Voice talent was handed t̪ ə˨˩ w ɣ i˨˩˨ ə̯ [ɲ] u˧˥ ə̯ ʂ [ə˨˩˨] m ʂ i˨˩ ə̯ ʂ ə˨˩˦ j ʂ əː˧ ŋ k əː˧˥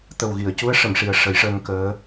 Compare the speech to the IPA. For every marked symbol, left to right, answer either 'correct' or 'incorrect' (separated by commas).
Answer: incorrect, correct